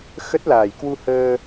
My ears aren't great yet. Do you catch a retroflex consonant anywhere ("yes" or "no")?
no